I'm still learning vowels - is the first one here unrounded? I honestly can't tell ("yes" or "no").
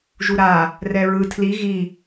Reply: no